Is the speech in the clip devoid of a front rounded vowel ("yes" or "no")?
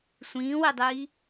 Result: yes